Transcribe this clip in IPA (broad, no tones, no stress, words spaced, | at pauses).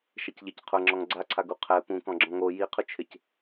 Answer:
ʃɛcʎɪc qʰʊŋ͡ǁɔŋ ɡ͡ǀaǀʰaɡu qʰɛ pũkɔ̃ ɡ͡ǁɔ̃ŋo jiqʰʊt͡ʃʰɪc